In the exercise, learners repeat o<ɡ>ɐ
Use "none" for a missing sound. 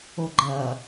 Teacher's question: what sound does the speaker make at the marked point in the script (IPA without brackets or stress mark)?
ɡ͡ǃ